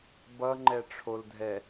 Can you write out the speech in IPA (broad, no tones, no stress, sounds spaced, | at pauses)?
b ʌ ŋ͡ǃ ɛ ʈ͡ʂʰ o l dʱ ɛ